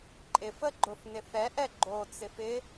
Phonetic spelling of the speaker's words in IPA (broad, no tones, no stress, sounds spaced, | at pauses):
ǃʼ ɪ f ə ɡ͡ǃ ʊ f n ɪ θ ɛ ʔ ɛ ɡ͡ǃ o t͡s ɪ f ɪ